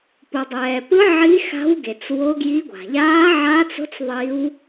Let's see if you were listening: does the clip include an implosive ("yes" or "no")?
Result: no